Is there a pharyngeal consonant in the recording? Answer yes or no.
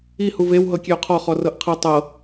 no